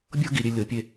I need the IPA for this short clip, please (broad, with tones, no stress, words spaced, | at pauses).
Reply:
bʲɤ˥ɡi˩˧ɾʲe˧ lʲɤ˩˧ pʲe˧